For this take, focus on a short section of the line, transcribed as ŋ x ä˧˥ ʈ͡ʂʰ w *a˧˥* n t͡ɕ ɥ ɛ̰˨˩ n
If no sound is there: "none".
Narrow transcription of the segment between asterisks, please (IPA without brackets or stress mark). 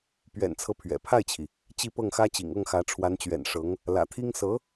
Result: a˧˥